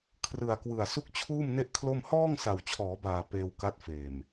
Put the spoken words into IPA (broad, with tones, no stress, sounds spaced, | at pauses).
kʰ r ɯ˨˩ a̯ k w ɯ˨˩ a̯ s u˥˩ k̚ t͡ɕʰ uː˥˩ m n e˥˩ ʔ kʰ l o˥˩ m h ɔː˥˩ ŋ s a˨˩ w t͡ɕʰ ɔː˩˦ b aː˨˩ p eː˧ w k a˦˥ t̚ f eː˨˩ m